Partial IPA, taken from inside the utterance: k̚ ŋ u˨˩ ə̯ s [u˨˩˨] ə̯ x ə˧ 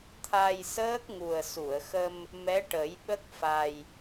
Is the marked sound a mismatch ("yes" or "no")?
no